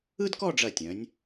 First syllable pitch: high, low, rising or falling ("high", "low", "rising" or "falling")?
high